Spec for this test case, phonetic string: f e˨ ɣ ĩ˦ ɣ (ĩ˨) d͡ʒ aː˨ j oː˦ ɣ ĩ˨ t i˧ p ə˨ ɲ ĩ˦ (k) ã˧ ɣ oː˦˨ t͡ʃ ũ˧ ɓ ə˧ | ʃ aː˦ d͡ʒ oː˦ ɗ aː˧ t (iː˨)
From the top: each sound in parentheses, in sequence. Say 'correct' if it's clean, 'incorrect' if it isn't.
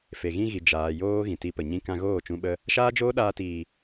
incorrect: i˨, correct, correct

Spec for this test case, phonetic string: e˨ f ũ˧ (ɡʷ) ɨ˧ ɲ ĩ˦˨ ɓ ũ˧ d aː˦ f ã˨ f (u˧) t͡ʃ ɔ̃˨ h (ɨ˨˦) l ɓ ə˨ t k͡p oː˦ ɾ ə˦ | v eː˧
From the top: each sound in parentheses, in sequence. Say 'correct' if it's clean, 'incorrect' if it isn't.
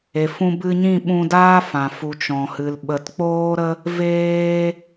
incorrect: b, incorrect: u˨, incorrect: ɨ˨

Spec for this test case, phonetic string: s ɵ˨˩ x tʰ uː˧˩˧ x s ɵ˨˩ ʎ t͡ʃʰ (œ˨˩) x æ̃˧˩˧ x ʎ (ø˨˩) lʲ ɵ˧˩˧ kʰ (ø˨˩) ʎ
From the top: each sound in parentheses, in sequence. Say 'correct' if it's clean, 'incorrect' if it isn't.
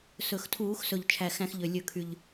incorrect: æ˨˩, correct, incorrect: y˨˩

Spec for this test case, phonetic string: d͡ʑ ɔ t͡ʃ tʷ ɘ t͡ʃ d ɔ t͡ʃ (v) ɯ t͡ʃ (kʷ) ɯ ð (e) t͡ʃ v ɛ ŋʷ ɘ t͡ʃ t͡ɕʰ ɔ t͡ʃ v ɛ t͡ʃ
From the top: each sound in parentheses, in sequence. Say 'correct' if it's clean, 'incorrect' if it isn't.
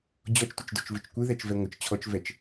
correct, correct, incorrect: ɛ

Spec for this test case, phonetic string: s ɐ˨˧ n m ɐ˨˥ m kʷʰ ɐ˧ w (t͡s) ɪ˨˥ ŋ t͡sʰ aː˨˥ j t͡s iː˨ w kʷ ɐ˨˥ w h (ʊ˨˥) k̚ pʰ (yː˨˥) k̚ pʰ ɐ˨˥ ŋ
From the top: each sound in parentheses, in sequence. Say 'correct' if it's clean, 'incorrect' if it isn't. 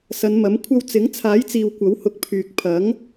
correct, correct, incorrect: yː˨

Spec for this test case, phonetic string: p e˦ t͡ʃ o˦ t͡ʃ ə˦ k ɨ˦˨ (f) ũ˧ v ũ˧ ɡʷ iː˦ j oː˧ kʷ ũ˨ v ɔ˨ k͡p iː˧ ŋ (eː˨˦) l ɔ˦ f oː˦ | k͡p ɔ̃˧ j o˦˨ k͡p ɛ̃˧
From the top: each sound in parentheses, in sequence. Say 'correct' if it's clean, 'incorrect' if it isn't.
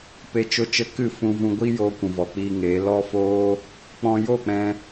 correct, correct

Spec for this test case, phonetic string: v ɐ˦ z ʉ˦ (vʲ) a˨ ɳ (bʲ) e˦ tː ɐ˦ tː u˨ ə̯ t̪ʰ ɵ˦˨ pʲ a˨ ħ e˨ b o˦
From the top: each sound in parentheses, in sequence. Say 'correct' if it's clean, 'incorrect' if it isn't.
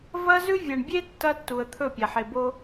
correct, correct

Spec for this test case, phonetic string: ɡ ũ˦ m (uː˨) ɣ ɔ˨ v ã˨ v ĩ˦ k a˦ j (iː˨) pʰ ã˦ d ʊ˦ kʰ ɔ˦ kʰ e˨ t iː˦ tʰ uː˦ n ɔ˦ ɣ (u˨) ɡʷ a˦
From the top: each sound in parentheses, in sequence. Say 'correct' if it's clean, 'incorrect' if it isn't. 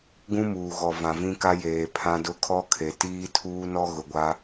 correct, incorrect: eː˨, incorrect: ʊ˨

